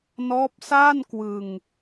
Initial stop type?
plain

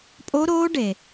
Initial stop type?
ejective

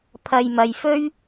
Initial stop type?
aspirated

